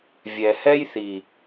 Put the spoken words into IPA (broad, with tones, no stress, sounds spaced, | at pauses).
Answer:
vʲ ɛ˨ h ɛ˦ j θ i˨